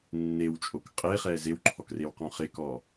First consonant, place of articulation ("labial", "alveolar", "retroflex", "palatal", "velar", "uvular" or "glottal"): alveolar